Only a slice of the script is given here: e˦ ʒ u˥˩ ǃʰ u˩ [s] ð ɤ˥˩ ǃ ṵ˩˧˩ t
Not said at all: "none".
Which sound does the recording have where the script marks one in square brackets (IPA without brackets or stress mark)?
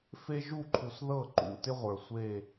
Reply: s